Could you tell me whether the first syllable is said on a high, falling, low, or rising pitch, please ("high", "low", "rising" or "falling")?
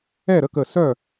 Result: falling